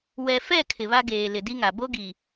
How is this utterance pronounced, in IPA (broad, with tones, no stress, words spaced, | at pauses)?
wɛ˨fɛ˦˨ kʰɪ˨βa˦ɡeː˨ lɪ˨di˦ŋa˨ bo˦ɡi˨